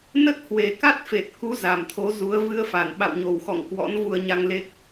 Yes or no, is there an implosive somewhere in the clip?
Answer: yes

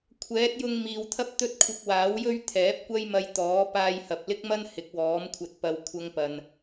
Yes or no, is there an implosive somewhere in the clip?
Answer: no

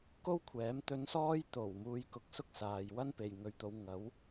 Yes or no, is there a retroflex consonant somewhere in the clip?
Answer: no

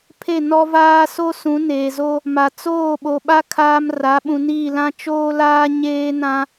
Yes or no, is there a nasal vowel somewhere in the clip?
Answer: yes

